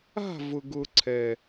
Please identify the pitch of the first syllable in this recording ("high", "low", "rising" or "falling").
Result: falling